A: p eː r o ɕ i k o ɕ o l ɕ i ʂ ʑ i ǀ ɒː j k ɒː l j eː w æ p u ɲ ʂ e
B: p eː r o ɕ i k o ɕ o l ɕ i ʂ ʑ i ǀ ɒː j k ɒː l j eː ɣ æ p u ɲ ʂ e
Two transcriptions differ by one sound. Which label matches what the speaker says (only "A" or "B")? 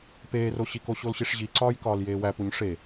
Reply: A